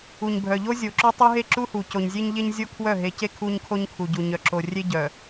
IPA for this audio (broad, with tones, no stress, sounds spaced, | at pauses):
u˨ ɲ bʱ œ˨ ʎ o˦ zʲ o˨ ǁ o˦ tˤ u˦ ɦ e˦ ǁ u˦ h u˨ c o˨ ɲ zʲ e˦ ɲ ʎ e˦ ɲ zʲ o˦ kʰ w œ˦˨ ɦ e˨ c e˦ kʰ u˦ ɲ kʰ o˦ ɲ kʰ u˨ ɟ u˨ ɲ œ˨ ǁ o˨ rʲ e˦ ɟ œ˨